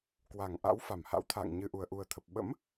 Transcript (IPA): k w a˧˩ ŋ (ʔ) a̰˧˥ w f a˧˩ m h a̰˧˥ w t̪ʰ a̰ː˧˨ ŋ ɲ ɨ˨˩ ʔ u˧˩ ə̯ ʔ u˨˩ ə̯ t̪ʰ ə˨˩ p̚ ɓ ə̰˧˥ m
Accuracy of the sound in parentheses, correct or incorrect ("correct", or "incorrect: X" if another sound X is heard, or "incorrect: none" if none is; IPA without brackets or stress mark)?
correct